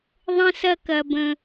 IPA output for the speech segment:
ðˤ ə̃˦ s ɐ˦ k ɐ˦ b ə̃˦

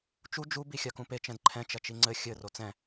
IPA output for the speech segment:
t͡ʃ u d͡ʒ u b i xʲ a k ũ p e t͡ʃ ɛ̃ d ǃʰ ɛ̃ t͡ʃ ɐ t͡ʃ i ŋ͡ǀ ɘ xʲ ɘ r o t͡s ɛ̃

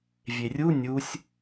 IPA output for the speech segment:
vʲ e rʲ u nʲ u sʲ

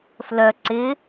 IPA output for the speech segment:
f l œ ǀ ɪ

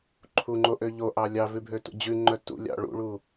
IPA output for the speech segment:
ǃʰ u ŋ͡ǃ o ʔ ø ʎ o ʔ ɑ lʲ ɑ v ʉ bʱ ø t ṵ d͡ʑ ʉ ŋ͡ǃ œ t ṵ lʲ ɑ̰ ɭ ṵ ɭ u

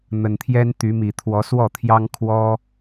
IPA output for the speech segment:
n̪ ə˨˩ n t̪ʰ j ɛ˦ n t̪ y˨˦ m i˨˩ t̪ʰ w ɔ˨˦ s w ɔ˥˨ t̪ʰ j ɑ˦ ŋ kʰ w ɔ˦

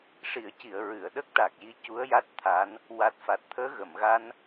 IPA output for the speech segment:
ʂ i˨˩˨ ə̯ c i˨˩˨ ə̯ ɹ ɨ˨˩˨ ə̯ ɗ ə˦˥ k̚ ʈ a˨˩ k̚ j i˧˥ c u˧˥ ə̯ j a˦˥ t̚ t̪ʰ a˧˥ n | w a˨˩ t̚ f a˨˩ t̚ t̪ʰ əː˧˥ ɣ ə˨˩˨ m ɣ a˧ n

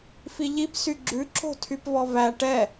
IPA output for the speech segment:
f i ʎ i p s y ɡ͡ǁ ʉ ǁ o̤ tʰ y p v ɔ v æ ʈ ɛ

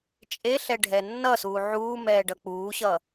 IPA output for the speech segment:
t͡ʃʼ e ɬ ɛ ɖʱ ɛ nː ʌ s uː ʕ uː m ɛː ɖ ʌ k͡p uː ɕ ʌː

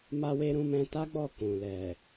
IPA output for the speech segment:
m a˧ w e˧ ɾ ũ˧ m ɛ̃˧ t a˦ ɡ͡b ɔ˦˨ k ũ˨ l ɛ˨

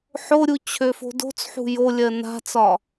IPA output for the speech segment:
ħ o ɾʲ u t͡ɕʰ ø f o̤ d o̤ t͡s ħ ṳ j o lʲ ɜ n a̤ t͡s ɒ

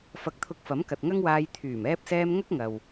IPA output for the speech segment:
f ɐ˧ k̚ t̪ʰ ʊ˧ k̚ f ɐ˨˥ m k ɐ˨ t̚ ŋ ɐ˥ ŋ w aː˧ j t̪ʰ yː˨˩ m ɛː˧ p̚ s ɛː˧ m ŋ ɐ˥ k̚ ŋ ɐ˨ w

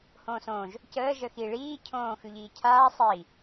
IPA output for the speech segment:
h õː s õː ʒ | c əː ʒ ə x i ɭ iː cʰ õː x ʉ ʎ iː cʰ aː sˤ iː

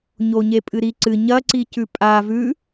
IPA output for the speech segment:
ɲ o ɲ e pʼ ɨ ɾ i ǀ ɨ ɲ ɐ ǀ i c ʉ pʼ a v ʉ

